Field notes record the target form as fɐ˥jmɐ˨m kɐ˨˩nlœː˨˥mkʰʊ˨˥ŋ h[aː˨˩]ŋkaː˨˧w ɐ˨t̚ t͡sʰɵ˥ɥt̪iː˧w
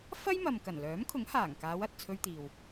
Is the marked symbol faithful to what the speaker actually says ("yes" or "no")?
yes